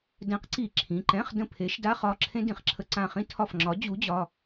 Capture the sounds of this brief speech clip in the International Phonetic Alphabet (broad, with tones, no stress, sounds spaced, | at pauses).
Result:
d ɛ̃˨˥ q ǀ i˧˩˧ ǁʰ ĩ˩˧˩ ǃ ɛ̃˧˥˧ χ d ə̃˦˨ pʰ e˨˥ ʃ d a˧˥˧ χ ɒ˩˧˩ ǁʰ ẽ˥ d ĩ˧˩˧ χ ǁʰ ə˧˩˧ ǀ ã˦˨ χ ĩ˥ tʰ ɒ˦˨ f ŋ͡ǁ ɒ˨˥ d͡ʑ u˨˥ d͡ʑ ɒ˩˧˩